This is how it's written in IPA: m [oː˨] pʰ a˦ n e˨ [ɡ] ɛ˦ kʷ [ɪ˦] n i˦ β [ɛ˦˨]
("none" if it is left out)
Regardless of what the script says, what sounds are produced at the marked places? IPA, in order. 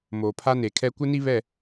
oː˨, kʰ, ɪ˦, ɛ˦˨

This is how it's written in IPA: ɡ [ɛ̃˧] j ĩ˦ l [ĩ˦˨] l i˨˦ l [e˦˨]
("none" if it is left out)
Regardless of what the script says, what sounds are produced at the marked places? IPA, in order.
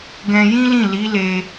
ɛ̃˧, ĩ˦˨, e˧

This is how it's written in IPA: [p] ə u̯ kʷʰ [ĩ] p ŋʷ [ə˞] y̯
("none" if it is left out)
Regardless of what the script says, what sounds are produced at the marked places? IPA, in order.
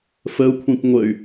f, ĩ, ə

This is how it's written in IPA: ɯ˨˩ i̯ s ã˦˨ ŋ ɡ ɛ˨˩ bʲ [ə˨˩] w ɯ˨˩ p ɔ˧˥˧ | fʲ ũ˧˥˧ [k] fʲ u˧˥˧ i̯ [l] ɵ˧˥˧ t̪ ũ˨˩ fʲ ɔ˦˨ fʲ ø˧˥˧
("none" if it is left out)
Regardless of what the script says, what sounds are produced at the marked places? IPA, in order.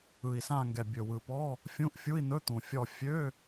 ɵ˨˩, ʔ, n̪

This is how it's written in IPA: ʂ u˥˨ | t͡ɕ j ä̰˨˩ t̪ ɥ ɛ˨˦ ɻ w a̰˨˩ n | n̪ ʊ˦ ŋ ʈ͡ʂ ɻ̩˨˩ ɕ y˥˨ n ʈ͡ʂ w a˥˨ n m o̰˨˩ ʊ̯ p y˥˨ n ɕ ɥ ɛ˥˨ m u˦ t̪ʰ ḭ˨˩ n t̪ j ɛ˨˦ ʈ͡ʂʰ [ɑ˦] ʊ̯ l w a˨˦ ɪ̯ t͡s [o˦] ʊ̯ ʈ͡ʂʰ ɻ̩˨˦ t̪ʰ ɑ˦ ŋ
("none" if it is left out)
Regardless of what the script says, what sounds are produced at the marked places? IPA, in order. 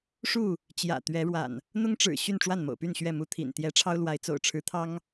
ɑ˦, o̰˨˩

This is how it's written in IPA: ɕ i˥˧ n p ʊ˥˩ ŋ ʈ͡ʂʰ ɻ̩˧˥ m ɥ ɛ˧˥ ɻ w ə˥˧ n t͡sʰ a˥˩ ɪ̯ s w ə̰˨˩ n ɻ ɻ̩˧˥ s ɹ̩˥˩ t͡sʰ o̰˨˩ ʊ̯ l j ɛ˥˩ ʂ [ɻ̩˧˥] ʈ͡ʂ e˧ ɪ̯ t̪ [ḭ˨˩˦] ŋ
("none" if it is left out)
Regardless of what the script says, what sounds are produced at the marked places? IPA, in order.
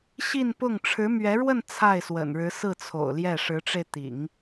ɻ̩˧˥, ḭ˨˩˦

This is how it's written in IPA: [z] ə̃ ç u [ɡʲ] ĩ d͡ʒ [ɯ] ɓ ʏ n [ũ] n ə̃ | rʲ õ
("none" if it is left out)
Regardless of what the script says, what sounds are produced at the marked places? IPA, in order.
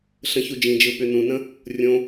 ɬ, d͡ʒ, ɯ, ũ

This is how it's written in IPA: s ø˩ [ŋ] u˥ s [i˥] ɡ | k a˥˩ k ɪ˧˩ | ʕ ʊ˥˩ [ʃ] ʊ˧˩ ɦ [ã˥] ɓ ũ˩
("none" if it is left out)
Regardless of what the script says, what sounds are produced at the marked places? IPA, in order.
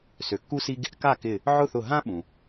kː, i˥, θ, ã˥

